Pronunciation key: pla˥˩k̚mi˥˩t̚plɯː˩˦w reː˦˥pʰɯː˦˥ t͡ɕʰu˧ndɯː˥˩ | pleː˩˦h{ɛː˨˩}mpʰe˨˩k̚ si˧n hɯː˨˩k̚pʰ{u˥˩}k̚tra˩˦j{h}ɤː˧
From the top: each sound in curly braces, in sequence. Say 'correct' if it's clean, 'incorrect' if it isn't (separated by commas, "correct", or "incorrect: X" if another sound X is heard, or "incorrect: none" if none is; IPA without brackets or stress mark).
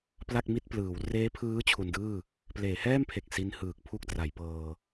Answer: incorrect: ɛː˥˩, correct, incorrect: p